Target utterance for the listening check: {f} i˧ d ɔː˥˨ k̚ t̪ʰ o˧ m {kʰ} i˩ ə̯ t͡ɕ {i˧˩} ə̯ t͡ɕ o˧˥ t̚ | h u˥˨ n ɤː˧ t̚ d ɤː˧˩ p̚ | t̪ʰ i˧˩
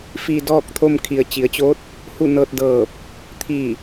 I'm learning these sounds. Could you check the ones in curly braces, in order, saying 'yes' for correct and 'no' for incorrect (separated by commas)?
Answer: yes, yes, no